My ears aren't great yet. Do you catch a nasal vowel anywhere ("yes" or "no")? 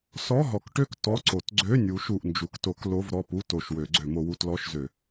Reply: no